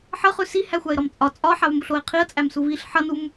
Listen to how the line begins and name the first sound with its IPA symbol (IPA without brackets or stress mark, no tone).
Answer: ħ